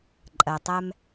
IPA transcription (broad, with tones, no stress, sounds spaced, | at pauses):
ǃʼ ɜ˩ tˤ ɛ˧ m